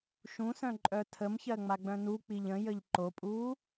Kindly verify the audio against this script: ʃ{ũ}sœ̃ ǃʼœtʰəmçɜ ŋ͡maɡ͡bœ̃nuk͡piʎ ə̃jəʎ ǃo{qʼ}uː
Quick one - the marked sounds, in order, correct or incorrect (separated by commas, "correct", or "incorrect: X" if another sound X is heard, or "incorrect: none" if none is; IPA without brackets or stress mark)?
correct, incorrect: pʼ